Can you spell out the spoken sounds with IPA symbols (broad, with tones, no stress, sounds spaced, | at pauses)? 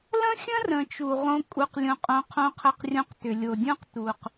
l ə̃˦ xʲ ə̃˦ r ə̃˨ t͡ʃ u˨ ʁ õ˦ kʼ u˨ q lʲ õ˨ qʼ õ˨ qʰ õ˦ qʰ ə˦ q rʲ õ˦ q t ʏ˨ lʲ o˨ dʲ õ˦ q t u˦ q